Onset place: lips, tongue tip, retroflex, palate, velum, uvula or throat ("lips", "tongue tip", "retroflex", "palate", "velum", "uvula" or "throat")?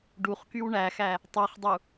retroflex